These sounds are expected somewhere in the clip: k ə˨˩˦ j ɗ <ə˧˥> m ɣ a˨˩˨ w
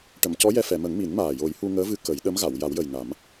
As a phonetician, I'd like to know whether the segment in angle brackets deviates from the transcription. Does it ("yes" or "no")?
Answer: no